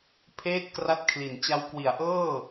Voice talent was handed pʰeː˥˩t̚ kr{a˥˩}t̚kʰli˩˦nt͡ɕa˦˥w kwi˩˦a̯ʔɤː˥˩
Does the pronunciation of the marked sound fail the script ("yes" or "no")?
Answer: yes